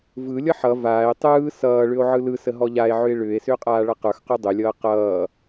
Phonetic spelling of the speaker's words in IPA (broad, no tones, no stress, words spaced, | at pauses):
vɯ lʲʌħʌ vaːe̯ tˤɯː sʌːɭʏo̯ ʕɯlɯsə ɦɔʎae̯ʕʏe̯ ɭʏːe̯sʏːqʼaː ɭʌqə˞x qudˤʏlʲʌː qʌː